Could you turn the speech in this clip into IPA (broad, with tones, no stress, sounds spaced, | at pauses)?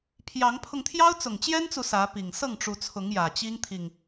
pʰ j ɑ˨˦ ŋ pʰ ʊ˧ ŋ t̪ʰ j ɑ˦ ʊ̯ t͡s ʊ˨˩ ŋ t͡ɕ j ɛ˦ n t͡s u˨ s ä˨˦ p i˨˩ ŋ s ɤ˥˨ ŋ ʈ͡ʂ u˨˦ t͡sʰ ʊ˨˦ ŋ j ä˨˩ t͡ɕ i˦ ŋ t̪ʰ i˨ ŋ